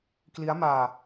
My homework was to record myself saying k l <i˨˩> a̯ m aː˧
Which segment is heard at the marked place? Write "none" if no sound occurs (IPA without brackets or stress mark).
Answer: i˦˥